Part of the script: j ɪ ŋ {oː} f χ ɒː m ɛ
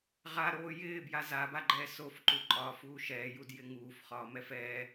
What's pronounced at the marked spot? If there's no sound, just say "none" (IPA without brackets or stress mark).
uː